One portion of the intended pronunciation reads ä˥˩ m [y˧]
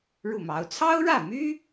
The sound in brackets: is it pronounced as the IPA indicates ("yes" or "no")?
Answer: no